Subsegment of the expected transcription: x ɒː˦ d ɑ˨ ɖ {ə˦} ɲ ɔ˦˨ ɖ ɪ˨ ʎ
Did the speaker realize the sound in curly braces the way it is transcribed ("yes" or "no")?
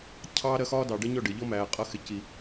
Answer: yes